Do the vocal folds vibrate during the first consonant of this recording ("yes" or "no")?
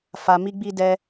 no